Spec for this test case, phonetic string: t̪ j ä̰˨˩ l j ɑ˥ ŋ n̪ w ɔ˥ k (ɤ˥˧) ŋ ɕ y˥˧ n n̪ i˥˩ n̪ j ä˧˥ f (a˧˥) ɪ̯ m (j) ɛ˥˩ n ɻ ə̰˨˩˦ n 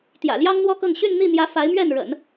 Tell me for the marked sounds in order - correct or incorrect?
correct, correct, incorrect

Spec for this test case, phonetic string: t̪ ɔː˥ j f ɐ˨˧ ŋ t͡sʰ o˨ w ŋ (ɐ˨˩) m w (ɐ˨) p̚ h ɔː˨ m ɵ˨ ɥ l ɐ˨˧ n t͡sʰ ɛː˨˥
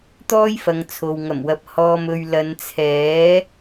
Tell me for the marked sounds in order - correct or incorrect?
correct, correct

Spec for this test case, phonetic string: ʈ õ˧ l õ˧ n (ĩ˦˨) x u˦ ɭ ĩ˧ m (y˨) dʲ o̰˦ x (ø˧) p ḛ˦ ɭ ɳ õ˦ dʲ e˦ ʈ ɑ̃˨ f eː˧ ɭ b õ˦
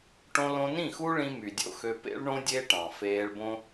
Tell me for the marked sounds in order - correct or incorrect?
correct, correct, correct

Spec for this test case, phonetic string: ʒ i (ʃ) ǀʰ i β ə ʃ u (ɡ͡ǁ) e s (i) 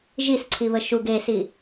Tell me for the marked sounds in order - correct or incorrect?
incorrect, incorrect, correct

